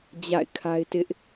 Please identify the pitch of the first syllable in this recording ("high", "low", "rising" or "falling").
falling